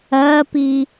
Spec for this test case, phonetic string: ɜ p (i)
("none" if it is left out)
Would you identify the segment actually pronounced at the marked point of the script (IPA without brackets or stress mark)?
i